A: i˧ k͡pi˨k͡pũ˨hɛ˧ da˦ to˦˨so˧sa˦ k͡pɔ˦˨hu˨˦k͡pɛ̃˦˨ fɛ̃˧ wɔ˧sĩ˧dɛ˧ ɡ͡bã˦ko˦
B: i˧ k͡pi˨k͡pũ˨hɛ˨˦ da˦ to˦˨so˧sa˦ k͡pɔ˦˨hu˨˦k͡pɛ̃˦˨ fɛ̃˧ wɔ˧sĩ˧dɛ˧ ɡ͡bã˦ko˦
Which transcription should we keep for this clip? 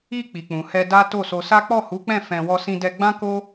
A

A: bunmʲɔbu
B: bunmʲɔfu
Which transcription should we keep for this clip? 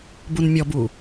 A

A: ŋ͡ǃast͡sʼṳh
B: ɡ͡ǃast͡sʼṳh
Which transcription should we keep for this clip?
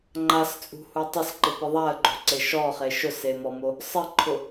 A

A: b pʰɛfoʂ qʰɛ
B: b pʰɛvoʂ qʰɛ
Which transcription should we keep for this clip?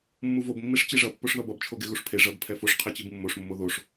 A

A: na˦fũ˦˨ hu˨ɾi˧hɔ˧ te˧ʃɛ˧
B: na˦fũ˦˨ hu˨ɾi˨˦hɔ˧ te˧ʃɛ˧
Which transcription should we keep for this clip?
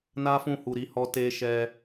B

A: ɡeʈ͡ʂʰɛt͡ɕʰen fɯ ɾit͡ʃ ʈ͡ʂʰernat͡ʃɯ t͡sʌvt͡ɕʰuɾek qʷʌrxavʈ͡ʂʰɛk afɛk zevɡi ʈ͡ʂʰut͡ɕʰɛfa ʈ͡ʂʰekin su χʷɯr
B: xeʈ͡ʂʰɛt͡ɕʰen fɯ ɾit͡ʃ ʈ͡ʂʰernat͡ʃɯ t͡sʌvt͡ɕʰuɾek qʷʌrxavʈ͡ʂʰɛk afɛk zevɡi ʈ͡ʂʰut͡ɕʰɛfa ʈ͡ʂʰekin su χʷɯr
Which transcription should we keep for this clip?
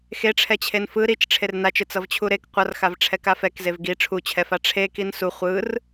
B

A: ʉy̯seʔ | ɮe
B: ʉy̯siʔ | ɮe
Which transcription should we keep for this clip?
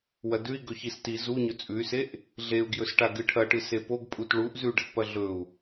A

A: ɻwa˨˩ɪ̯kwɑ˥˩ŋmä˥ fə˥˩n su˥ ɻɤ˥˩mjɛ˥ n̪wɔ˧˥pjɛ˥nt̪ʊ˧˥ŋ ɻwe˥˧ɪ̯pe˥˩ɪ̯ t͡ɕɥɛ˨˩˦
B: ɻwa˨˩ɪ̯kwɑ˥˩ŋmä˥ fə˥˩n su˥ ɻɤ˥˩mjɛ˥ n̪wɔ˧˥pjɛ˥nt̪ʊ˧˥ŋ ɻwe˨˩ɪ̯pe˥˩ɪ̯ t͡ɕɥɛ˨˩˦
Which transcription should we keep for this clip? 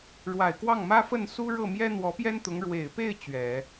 B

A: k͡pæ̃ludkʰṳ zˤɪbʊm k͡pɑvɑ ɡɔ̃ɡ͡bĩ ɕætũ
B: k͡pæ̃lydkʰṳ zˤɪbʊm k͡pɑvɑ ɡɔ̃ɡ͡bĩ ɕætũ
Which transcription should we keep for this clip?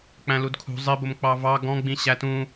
A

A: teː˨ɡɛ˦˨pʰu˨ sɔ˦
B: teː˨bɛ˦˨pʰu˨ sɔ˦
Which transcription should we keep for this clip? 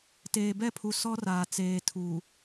B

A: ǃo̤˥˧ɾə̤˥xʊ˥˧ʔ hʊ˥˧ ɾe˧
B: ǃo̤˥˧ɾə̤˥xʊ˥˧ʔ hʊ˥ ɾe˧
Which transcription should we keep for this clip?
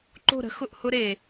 B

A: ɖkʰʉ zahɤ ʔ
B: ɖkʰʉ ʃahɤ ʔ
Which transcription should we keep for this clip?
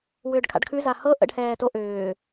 A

